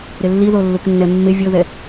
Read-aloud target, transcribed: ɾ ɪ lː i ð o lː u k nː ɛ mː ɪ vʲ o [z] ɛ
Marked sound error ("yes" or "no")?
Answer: yes